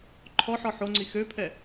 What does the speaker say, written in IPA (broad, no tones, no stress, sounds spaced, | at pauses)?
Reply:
ǃʰ ɔ ħ ɔ ħ o ŋ͡ǀ i x ø pʰ ɛ